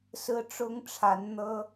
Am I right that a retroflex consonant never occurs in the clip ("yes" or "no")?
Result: no